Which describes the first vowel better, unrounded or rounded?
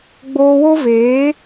rounded